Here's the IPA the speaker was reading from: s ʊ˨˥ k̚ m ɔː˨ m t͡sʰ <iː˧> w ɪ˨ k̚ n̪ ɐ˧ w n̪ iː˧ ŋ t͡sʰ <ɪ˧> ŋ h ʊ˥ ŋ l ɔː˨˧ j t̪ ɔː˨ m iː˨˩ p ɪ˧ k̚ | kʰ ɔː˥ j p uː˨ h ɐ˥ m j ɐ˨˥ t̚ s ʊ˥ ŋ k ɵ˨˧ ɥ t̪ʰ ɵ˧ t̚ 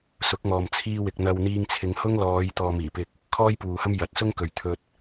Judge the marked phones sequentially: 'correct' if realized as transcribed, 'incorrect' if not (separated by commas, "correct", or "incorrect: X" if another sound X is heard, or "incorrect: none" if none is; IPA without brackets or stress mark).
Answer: correct, incorrect: ɪ˨˧